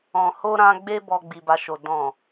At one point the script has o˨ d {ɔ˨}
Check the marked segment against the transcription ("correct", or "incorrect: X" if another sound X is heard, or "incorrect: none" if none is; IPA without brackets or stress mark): incorrect: ɔ̃˨